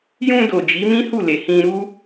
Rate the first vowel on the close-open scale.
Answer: close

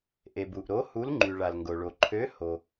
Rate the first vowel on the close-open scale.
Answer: mid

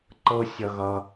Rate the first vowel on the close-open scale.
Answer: mid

